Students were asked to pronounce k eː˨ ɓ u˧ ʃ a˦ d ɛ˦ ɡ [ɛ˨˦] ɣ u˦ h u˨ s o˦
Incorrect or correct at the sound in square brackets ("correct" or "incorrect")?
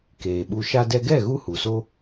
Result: incorrect